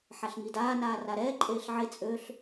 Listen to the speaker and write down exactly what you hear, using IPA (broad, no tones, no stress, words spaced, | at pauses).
ħaɬŋidaː naːraɾɛː ǃʼeːɬʕe t͡sʼøɬ